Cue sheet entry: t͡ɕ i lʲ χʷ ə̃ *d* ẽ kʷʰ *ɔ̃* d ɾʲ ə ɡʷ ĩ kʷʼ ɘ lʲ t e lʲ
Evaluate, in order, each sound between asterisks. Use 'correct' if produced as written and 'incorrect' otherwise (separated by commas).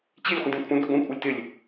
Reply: correct, incorrect